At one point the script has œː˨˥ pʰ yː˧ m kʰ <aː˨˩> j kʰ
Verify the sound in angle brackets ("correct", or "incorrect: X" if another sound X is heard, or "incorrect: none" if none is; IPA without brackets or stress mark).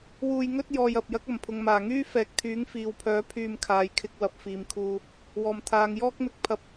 incorrect: aː˨